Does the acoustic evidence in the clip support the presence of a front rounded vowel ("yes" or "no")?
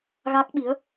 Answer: no